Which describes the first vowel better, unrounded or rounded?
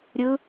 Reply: unrounded